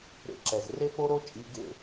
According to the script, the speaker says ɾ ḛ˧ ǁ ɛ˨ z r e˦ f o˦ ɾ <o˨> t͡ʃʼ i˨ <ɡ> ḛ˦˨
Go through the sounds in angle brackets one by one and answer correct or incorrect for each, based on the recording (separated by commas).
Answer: incorrect, correct